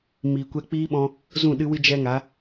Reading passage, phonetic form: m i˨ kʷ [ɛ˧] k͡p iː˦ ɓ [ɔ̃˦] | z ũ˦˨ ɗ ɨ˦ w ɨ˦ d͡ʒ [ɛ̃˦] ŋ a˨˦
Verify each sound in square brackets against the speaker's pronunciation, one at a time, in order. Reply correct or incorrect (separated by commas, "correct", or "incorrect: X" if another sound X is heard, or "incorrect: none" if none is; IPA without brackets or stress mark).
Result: correct, incorrect: ɔ̃˧, incorrect: ɛ˦